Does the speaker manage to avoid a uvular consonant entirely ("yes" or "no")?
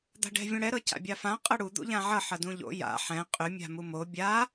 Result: no